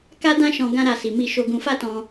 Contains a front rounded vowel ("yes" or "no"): no